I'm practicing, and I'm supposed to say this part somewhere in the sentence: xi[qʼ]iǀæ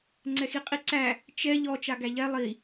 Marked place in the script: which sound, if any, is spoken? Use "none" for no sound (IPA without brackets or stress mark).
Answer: qʼ